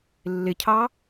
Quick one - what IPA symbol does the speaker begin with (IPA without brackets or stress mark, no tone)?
lː